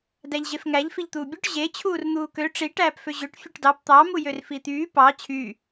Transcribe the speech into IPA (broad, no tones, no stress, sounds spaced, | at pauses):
d æ ʎ ʑ e f ŋ æ ʎ f i ʎ t̪ uː bʲ o ʈ ʑ e t͡ɕʰ uː r n̪ uː k ø ʈ͡ʂ i ʈ æː p f ø ʑ ø ʈ fʲ ɯ ʈ d ɑ p t̪ ɑ m u j ø r f i t̪ yː p ɑ t͡ɕʰ y